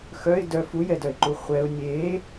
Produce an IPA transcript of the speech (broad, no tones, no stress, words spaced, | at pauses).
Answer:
xœɪ̯ dœ fujɛdœɪ̯ǃu χʷɛʊ̯ nʲe